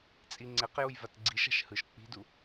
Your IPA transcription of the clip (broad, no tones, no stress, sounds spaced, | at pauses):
t͡sʼ i ŋ͡ǀ e q j u j v a t ɡ͡ǀ i ʃ a̤ ʃ h ɯ ʃ k͡p i̤ d u